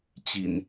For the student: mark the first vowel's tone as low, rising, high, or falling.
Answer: low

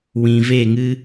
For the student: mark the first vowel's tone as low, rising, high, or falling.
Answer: low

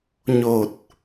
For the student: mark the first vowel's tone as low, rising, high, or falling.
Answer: low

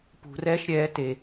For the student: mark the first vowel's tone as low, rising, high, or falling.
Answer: low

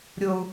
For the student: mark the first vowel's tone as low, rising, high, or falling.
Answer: low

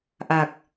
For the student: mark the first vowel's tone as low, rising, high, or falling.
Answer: low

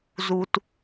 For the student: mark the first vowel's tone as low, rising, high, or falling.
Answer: low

